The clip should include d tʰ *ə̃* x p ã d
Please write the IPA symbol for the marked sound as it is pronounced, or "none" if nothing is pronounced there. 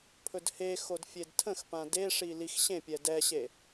ə̃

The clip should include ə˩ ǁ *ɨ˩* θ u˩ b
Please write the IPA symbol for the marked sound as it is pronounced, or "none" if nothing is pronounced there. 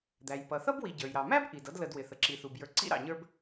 i˩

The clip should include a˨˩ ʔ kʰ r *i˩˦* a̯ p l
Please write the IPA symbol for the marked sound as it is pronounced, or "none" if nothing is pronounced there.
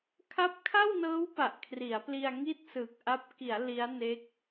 i˩˦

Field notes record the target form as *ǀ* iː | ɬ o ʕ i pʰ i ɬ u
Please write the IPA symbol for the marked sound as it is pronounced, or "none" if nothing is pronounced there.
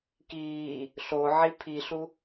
k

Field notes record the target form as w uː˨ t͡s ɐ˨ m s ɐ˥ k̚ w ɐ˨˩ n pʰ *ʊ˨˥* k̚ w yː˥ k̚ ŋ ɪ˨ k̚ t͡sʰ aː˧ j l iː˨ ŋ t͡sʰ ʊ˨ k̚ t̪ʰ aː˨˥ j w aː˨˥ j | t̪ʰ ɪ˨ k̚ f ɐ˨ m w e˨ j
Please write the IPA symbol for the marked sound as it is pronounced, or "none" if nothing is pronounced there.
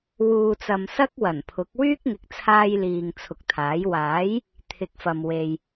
ʊ˨˥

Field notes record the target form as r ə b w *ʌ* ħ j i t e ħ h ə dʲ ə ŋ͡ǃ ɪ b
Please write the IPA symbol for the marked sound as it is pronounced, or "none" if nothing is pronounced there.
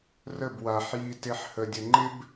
a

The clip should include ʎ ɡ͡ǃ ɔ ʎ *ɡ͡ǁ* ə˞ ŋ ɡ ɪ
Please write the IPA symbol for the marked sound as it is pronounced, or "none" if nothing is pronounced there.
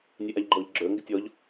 ɡ͡ǁ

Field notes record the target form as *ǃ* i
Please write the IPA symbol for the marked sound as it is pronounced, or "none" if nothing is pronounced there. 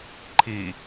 ǃʰ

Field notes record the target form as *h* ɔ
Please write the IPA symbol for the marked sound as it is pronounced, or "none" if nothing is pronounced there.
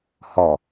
h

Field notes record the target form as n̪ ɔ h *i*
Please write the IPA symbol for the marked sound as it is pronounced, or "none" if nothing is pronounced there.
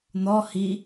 i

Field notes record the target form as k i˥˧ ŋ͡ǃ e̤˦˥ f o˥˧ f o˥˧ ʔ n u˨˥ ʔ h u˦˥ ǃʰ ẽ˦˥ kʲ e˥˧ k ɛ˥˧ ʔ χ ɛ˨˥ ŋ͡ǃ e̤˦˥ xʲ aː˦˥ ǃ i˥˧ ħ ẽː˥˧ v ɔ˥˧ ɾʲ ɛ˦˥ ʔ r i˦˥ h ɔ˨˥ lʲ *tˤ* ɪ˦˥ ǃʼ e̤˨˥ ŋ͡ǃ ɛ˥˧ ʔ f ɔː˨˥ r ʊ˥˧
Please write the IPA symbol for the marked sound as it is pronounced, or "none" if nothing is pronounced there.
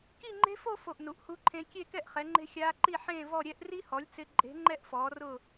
t͡s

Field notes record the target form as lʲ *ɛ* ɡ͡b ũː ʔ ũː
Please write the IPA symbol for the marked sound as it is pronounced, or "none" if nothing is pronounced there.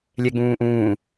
ɛ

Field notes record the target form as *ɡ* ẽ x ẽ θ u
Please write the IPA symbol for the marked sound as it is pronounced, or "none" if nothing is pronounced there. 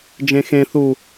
d͡ʒ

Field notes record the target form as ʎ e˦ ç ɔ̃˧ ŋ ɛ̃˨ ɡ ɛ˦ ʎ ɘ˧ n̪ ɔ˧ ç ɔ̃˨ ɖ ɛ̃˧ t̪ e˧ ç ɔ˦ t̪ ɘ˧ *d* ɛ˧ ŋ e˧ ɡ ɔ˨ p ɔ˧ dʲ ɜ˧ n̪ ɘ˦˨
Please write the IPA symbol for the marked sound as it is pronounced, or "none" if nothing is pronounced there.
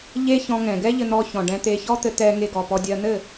t̪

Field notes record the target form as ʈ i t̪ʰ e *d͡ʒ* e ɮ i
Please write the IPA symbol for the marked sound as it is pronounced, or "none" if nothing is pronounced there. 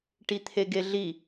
ɡ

